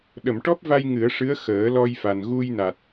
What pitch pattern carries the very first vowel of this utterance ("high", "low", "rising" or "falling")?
low